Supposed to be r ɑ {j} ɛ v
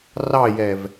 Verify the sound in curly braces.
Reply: correct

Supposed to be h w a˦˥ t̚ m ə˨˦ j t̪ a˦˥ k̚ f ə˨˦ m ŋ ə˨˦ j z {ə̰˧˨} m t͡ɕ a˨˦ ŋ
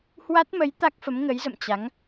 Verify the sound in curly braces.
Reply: correct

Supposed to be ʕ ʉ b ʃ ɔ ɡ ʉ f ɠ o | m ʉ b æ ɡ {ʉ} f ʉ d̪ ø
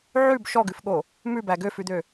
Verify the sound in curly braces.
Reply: incorrect: ø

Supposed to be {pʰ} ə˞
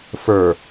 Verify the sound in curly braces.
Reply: incorrect: f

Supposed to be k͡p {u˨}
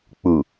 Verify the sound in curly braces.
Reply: correct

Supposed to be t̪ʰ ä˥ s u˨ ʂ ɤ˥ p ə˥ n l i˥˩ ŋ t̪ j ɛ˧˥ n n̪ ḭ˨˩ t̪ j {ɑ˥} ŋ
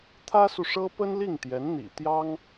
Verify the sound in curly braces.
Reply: correct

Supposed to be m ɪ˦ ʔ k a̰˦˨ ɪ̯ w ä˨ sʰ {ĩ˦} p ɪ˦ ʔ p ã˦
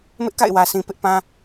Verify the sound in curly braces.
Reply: incorrect: ĩ˨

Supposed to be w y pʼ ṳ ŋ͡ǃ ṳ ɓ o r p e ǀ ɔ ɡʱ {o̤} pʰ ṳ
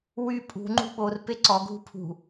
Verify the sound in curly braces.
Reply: incorrect: ṳ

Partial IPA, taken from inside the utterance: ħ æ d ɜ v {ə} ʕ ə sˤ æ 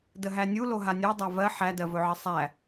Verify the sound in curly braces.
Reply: incorrect: ɵ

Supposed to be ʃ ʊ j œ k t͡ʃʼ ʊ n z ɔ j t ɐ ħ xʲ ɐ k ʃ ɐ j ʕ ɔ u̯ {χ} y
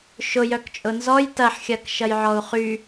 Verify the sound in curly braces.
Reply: correct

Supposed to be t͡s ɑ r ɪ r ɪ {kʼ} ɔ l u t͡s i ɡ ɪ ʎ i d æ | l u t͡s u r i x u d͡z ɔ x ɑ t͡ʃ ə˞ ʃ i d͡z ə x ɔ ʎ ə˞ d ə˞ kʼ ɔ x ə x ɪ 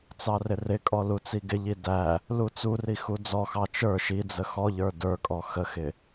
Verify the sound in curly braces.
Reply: correct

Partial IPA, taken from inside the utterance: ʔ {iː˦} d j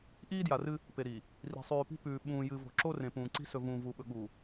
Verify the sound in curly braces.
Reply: correct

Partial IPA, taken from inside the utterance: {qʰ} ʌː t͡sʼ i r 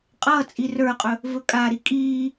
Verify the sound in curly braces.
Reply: incorrect: qʼ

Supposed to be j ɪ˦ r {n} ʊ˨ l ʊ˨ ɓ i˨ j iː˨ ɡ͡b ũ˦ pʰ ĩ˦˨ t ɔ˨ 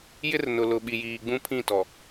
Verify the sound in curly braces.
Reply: correct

